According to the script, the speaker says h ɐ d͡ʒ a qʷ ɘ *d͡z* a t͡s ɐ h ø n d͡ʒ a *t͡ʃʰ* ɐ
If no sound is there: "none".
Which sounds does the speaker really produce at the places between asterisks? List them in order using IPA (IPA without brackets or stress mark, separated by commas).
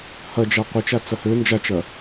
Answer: t͡ʃ, t͡ʃ